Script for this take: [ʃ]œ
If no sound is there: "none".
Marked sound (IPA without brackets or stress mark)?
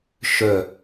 ʃ